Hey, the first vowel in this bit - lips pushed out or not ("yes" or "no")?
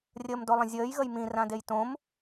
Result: no